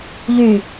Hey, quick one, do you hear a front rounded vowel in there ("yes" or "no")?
yes